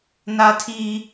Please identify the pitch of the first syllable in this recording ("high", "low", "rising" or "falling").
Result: high